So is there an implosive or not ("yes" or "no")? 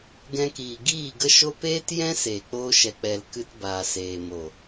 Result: no